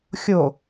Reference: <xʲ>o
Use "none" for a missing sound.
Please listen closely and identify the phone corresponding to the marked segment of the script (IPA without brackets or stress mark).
xʲ